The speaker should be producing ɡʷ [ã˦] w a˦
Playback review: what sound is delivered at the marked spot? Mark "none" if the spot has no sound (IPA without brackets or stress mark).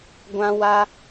ã˦